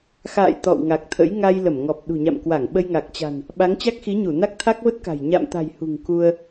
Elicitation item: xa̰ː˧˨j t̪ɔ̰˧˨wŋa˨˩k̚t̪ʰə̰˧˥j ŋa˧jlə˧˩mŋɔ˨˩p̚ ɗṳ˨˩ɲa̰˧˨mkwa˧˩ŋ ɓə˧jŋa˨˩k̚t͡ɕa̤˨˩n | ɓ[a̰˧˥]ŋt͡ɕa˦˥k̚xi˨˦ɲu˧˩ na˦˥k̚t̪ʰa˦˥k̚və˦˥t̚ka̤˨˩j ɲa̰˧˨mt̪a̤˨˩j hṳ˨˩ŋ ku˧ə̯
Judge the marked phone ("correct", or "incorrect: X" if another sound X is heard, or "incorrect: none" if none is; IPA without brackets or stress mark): incorrect: a˨˦